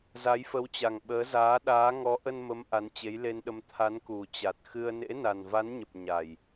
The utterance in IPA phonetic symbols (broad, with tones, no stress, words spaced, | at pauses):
za˨˦jfə˨˦wt͡ɕa˨˩ŋ ɓəː˨˦zaː˨˦ɗaː˨˦ ŋɔ˨˦ʔə˧nmə˨˦m ʔa˨˦nt͡ɕe˨˦jle˧nɗə˧m t̪ʰa˨˦nku˨˩t͡ɕa˨˩t̚xɨ˧ə̯ nḛ˧˥na˨˩nva˨˦nɲə˨˩p̚ ɲa˨˩j